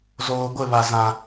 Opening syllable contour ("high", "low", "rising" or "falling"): low